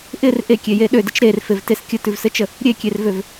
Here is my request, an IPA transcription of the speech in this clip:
ʔɪr ʔekʲeje ɗødɪt͡ʃ ɾerfevtes kʲətʉvsɘt͡ʃə | ɾʲekʲervøv

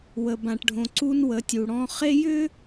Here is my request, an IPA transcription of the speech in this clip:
wə˨bã˨ʈɖʱõ˨ ǀu˦nwə˨˦tʲu˨ɽɔ̃˦ χe˦jʏ˦

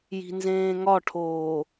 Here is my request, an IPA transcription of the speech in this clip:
ji̤nzẽːŋɒʈʰoː

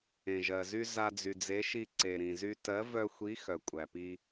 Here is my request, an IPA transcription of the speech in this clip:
ẽ˩ʒɜ˩zy˧ za˧d͡zy˩d͡ze˨˥ʃi˧ ǀe˩ɾĩ˩zy˧ tɜ˨˥vœ˧xʷi˨˥ xœ˩kʷʼæ˩pi˧

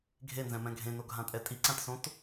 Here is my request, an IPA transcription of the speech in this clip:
ɡʱenzɛ̃mɛ̃ ɡʱẽnoɡʱãtʼɛ tʼiǀãtsõt

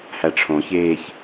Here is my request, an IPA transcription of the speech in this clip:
hæʈ͡ʂʰõçeːç

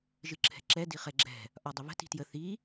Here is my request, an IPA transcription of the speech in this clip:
ʒɨǁʰɛ̤ǁɛ diχɛɡ͡ǁɛ̤ | ʔɒdˤəβə̤ ti̤tjə θi

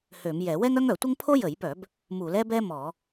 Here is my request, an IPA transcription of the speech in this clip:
hø˧˩˧mjɛ˧˩˧ wɛ˥ŋœ˥ŋ œ˧˩˧tʷə˥ŋ pʰo˥jə˧˩˧jpœ˧˩˧b | mu˧˩˧lɛ˥bɛ˥ mɔ˧˩˧

